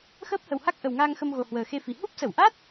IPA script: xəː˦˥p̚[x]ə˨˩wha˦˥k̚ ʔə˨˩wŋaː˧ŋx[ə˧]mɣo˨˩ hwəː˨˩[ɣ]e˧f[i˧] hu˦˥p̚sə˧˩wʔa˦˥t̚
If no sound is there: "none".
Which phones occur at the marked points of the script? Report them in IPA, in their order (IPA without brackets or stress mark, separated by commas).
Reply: h, ə˧, x, i˨˩